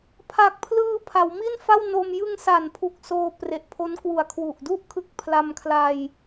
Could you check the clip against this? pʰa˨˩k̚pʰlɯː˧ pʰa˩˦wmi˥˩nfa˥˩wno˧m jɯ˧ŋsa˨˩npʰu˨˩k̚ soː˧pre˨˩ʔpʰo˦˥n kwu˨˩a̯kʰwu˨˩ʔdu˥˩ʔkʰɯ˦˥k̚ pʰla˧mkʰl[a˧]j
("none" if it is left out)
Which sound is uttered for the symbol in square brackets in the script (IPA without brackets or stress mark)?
a˧